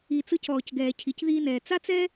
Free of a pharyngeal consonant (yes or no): yes